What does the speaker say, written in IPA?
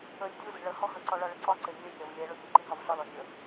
əlʲ dʲu zə̤ɭə hɔɦəǀɔɭɒ ɭəǀɒǀe nʲəe̯rʲɒv lʲɛ ɭɔʎuǃi ɦɒvɬɒl ɔnʲə

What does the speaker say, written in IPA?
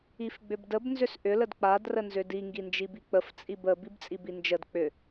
ifɡ͡bʏbdəb nzʏsʔʏ lədk͡pad rənzʏdi ŋɡind͡ʒibik͡pəf t͡sʼibə bibt͡sʼibind͡ʒəd k͡pʏ

